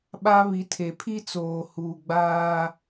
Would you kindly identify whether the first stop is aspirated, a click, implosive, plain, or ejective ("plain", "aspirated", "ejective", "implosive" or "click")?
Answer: implosive